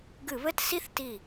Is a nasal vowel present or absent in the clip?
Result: absent